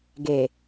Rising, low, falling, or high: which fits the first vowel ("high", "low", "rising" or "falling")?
low